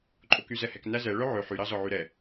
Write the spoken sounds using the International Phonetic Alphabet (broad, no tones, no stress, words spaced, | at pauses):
ǃʼokyzɛhɛk næzɛ ɭœʕø ħy ɾɑzɔʕyɾɛ